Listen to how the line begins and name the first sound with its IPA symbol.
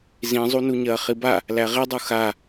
z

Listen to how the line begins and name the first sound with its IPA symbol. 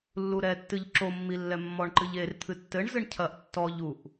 lː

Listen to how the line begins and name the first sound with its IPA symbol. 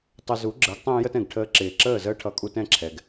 tˤ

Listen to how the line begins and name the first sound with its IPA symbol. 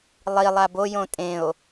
lˠ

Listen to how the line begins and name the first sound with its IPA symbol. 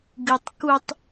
ɡ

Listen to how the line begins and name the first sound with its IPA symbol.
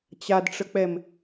t͡ɕ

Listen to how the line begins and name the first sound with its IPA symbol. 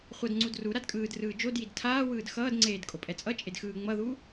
χʷ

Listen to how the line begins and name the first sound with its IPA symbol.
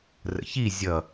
r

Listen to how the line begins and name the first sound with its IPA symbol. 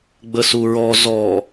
ɡ͡b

